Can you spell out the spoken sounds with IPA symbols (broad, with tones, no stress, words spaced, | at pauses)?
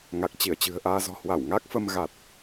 ŋa˨˩k̚t͡ɕi˧˩ə̯t͡ɕɨ̤˨˩ə̯ʔaː˧ zɔ̤˨˩hwa˧˩w ŋa˦˥k̚fə˧m ɣa˨˩t̚